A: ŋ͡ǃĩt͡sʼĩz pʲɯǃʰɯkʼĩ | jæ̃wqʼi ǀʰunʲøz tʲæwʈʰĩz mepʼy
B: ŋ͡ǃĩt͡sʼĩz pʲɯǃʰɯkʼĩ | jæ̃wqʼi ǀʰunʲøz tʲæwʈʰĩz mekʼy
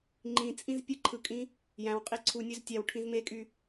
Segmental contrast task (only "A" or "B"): B